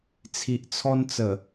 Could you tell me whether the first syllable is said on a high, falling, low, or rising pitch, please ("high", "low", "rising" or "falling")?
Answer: low